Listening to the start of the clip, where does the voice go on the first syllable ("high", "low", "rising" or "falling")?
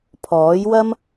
rising